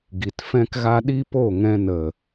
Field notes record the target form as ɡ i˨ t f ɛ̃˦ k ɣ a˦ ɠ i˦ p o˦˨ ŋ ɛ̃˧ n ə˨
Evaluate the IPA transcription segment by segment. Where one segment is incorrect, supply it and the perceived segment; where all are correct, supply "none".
ɠ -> ɗ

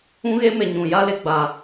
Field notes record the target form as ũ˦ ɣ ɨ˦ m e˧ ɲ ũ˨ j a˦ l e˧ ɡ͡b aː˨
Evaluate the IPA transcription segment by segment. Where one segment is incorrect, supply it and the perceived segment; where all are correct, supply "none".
ɨ˦ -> e˦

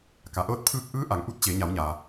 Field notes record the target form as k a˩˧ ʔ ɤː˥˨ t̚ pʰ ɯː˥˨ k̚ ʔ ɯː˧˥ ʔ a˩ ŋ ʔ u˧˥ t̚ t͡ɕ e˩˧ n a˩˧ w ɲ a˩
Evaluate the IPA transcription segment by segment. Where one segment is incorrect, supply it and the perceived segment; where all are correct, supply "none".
n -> ɲ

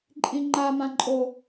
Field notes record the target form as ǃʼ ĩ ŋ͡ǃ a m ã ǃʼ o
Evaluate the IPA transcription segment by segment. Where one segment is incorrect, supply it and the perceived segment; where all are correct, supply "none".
none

